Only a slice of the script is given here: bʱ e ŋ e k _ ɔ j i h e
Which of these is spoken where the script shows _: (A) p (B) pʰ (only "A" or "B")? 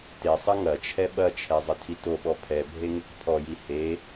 B